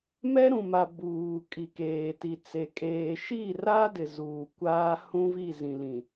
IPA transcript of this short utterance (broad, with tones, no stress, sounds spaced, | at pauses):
m ɛ˦ ɾ ũ˨ m a˨ b uː˨ kʼ i˨ k eː˨ t i˨ t͡s e˨ kʼ eː˨ ʃ i˦˨ r a˦ d ɪ˨ z uː˨ kʷ aː˦ h ũ˦ v i˦˨ z ĩ˨ l ĩ˨